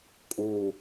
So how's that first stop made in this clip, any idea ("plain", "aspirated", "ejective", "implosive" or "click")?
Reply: ejective